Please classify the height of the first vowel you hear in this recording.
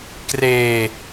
mid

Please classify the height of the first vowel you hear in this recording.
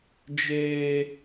mid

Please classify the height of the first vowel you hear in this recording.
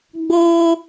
mid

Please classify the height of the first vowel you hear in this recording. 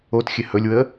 mid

